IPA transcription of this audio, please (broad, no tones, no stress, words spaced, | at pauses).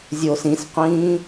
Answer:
zʲoːsĩsqʷĩː